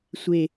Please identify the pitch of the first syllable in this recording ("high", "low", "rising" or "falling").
low